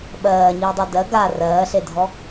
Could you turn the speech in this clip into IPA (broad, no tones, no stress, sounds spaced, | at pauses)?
ɓ ɜː ɲ iː dˤ a d ɜ ɡ a r ɜː ɬ e dʱ ɔ